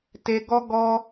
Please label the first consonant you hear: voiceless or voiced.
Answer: voiceless